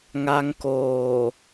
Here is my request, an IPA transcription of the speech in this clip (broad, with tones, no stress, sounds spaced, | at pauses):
ŋ a˦˥ ŋ k oː˨˩